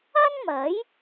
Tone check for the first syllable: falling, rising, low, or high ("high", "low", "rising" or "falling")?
high